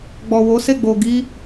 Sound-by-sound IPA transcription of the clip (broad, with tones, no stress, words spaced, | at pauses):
ɡ͡bɔ˨wo˨˦se˦˨ ɡ͡bo˨ɡi˧